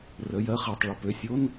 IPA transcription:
r ə˩˧˩ j ɜ˧˥˧ χ ɛ˩˧˩ tˤ ɭ ə˩˧˩ p ø˩˧˩ sʲ o˧˥˧ n

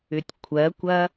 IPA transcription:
ʏ tʲ kʷʰ ɜ kʷ ɐ

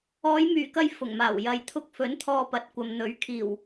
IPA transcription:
ɔː˨˧ j m yː˨˩ k ɐ˧ j f ʊ˨˩ ŋ m aː˨˩ w j ɐ˨˧ j t̪ʰ ʊ˧ k̚ f ɵ˨˥ n t̪ʰ ɔː˧ p ɐ˨˥ t̚ kʷ ɐ˨ m n̪ ɵ˨˥ ɥ kʰ iː˨˩ w

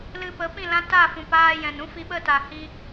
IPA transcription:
l ɨ˧ p ə˨˦ p ĩ˦˨ l ã˦ t a˦˨ f ũ˨ p aː˧ j ɛ̃˨ n ũ˦ f i˧ ɓ ə˦ t a˨ h i˧

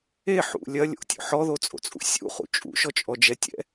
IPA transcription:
e ħ ṵ lʲ ɐ lʲ o̰ tʲ o̰ ħ ɔ ð o t͡sʼ o̰ t͡sʼ ṵ sʲ ṵ χ ṵ t͡ʃʼ ṵ ʃ ɔ t͡ʃʼ ɔ d͡ʒ ɛ tʲ ɛ̰

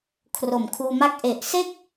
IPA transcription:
kʰ r o˨˩ m kʰ uː˧ m a˦˥ k̚ ʔ e˨˩ ʔ s e˥˩ k̚

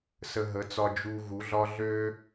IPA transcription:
s ə˧ ɦ ə˨˦ t͡s ɒ˧ d͡ʒ u˧ ɣ u˨˦ ɮ ɒ˦ ɮ ø˦

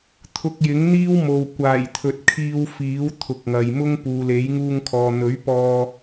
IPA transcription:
t̪ʰ ʊ˧ k̚ j ɪ˨˥ ŋ n̪ iː˥ w m o˨ w kʷ aː˨˩ j t̪ʰ ɵ˨ t̚ kʰ iː˧ w f iː˨˥ w t̪ʰ ʊ˨ k̚ ŋ ɐ˨ j m ʊ˥ ŋ p uː˨ l e˨˥ j ŋ uː˧ ŋ kʰ ɔː˨ n̪ ɵ˨˥ ɥ p ɔː˧

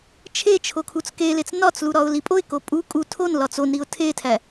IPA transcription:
t͡ʃʰ e t͡ʃʰ o kʰ u t͡s k e l e t͡s n ɒ t͡s l u ɾ ɒ ʊ̯ l i pʼ o ɪ̯ k o pʼ u kʼ u tʰ o n l ɒ t͡s o n ɾ i ʊ̯ tʰ e tʰ æ

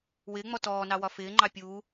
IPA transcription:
w ɪː ŋ͡m ɔ t ɔː n ɑ w ɒ f ɪː ŋ͡ǃ ɑ pʲ uː

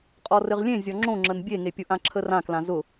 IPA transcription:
qʼ ɔ r ɘ ʁ lʲ ẽ zʲ ɔ ŋ͡ǁ õ ŋ͡ǁ ə n bʲ e ŋ e pʲ ʊ ʔ ã ǁʰ ə r ã k l ã z ʊ

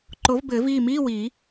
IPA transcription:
ǃ o˩˥ v b ɘː˨˩˦ v iː˥˩ m iː˧˥˧ w iː˨˩˦

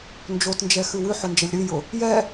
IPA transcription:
n d͡ʒ o t n d͡ʒ ɛ x ʉ w ʉ ħ ʊ n d͡ʒ ɐ lʲ ɾ ʉ j ʊ | j ɛ

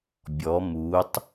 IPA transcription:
bʲ ɔ m u tˤ

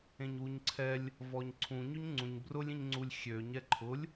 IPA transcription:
ẽ ɲ w u ɲ ǀʰ ɛ lʲ | v ɔ ɲ ǀʰ ũ ɲ y ɲ ŋ͡ǀ ũ ɲ b r ʊ lʲ ĩ ɲ ŋ͡ǀ u lʲ xʲ ø ɲ ɛ ǃʰ ʊ lʲ

